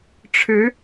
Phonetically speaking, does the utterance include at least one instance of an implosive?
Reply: no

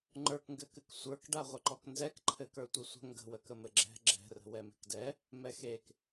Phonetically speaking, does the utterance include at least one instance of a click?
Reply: yes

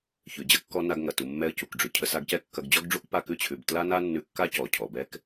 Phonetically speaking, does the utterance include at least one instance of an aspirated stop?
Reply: yes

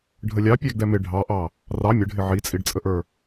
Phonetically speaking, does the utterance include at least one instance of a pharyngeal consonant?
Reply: yes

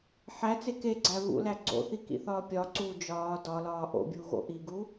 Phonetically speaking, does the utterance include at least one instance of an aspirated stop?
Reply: no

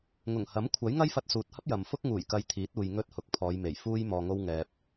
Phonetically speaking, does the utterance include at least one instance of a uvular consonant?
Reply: no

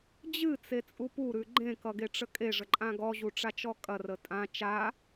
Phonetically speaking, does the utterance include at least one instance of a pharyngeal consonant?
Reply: no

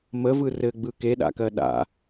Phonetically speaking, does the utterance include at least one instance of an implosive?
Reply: yes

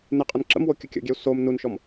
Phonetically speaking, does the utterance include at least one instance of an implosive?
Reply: no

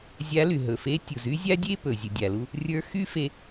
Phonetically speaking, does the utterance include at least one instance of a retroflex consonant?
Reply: no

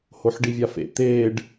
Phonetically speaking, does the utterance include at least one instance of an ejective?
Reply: no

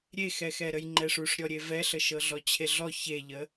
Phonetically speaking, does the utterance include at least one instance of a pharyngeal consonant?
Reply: no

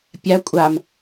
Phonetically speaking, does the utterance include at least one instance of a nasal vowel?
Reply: no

